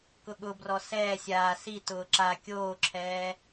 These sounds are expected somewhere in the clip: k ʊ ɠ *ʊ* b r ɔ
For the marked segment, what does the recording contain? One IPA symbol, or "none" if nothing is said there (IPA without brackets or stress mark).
ʊ